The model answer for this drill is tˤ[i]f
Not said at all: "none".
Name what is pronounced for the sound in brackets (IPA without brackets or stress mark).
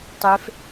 e